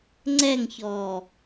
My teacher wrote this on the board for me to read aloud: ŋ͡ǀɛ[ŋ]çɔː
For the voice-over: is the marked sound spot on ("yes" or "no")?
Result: yes